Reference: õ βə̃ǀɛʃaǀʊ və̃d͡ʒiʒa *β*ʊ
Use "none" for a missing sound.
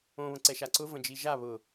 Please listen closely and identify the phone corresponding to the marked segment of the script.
β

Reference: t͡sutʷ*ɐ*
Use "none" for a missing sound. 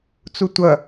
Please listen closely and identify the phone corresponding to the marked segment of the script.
ɐ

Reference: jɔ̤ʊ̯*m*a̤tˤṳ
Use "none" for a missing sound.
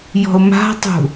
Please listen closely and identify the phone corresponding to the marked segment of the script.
m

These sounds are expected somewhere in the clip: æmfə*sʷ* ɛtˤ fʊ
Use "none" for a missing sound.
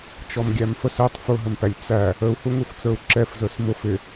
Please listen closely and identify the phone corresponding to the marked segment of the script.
s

